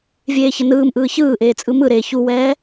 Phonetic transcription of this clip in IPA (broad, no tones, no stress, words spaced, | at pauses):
vʲeːçənɯːmʔɯː çɯːʔeː t͡sʼɯmɯɾeː çuwɛː